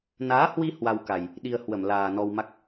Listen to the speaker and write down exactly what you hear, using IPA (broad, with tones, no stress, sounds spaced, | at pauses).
n aː˨˦ h w i˧ h w a˧ w k a˨˩ j | ɗ i˧ ə̯ h w ə˧˩ m l aː˨˩ n ɔ˧ w m a˦˥ k̚